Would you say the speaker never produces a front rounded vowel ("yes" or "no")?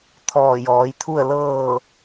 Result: yes